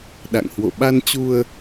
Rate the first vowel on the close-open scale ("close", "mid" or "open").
open